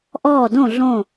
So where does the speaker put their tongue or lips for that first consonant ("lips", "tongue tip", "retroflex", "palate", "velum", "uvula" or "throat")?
throat